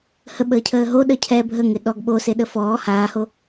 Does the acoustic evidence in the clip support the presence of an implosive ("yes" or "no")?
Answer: yes